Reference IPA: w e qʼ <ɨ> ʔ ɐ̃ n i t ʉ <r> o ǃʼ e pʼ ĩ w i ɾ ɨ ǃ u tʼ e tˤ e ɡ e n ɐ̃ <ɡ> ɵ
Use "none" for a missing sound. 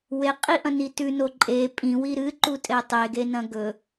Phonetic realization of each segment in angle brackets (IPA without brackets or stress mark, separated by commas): i, n, ɡ